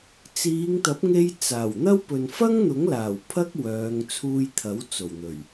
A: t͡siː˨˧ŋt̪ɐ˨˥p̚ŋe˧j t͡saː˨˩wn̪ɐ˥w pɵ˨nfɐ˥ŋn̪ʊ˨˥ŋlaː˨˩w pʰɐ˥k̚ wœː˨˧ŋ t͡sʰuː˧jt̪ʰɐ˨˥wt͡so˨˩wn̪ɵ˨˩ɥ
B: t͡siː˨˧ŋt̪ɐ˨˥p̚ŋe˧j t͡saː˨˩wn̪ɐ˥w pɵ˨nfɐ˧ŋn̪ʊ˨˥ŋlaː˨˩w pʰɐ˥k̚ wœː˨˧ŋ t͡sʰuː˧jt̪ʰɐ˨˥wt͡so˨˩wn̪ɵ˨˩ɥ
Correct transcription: A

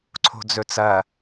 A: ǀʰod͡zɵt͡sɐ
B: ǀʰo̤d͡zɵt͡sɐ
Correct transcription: B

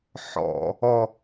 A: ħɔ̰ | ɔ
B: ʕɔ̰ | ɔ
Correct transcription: A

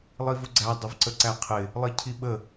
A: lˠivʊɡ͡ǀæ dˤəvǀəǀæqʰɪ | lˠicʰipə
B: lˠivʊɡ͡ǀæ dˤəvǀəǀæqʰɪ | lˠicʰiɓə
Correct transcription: B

